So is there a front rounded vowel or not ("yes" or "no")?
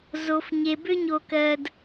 yes